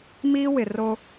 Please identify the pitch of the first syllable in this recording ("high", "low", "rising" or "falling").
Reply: high